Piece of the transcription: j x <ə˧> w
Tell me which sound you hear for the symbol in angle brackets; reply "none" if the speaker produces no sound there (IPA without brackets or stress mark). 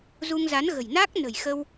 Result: ə˧